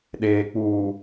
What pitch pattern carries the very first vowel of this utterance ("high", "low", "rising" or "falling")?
low